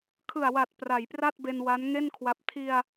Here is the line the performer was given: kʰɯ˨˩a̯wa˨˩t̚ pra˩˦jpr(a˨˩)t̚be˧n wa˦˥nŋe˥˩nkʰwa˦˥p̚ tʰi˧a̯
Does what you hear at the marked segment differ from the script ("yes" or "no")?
yes